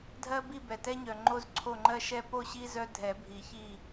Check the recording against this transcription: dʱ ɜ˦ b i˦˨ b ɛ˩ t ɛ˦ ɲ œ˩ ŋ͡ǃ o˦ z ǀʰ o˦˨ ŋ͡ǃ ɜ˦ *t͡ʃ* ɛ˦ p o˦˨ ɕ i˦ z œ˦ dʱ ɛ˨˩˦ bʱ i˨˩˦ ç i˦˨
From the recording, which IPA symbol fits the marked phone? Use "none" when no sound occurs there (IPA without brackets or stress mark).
ʃ